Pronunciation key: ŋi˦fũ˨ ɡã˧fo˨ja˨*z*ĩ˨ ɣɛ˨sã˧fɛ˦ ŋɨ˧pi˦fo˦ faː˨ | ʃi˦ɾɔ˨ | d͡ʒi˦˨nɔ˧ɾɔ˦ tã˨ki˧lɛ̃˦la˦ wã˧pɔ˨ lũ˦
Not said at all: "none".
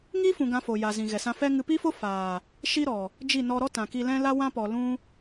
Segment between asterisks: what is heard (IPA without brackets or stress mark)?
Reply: z